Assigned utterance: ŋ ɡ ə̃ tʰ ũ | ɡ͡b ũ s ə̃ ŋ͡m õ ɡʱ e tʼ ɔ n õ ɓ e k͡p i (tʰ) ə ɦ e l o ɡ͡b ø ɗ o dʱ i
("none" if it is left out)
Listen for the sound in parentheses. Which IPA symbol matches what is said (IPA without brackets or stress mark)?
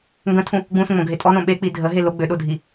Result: dʱ